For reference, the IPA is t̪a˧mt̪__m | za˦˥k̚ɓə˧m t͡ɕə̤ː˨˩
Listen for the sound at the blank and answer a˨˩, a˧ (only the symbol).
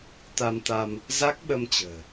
a˧